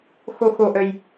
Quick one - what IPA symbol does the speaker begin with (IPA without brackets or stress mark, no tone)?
x